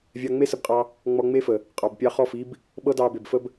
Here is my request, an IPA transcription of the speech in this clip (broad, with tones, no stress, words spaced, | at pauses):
vʲɑ˧ŋ͡me˦sə˧bqʼɑ˧ | ŋ͡mɔ˧ŋ͡me˦fə˨ | qʼɑ˨bpʲɑ˧χɔ˦˨fi˦b | ɓɤ˦ dɑ˧be˨bfə˦b